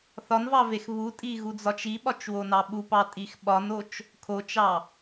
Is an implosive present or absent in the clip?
present